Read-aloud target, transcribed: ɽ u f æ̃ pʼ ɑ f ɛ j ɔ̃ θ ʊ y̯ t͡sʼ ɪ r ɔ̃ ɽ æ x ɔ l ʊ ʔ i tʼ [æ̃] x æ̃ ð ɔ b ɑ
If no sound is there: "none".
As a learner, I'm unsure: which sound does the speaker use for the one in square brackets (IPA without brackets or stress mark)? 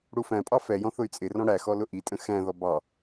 ə̃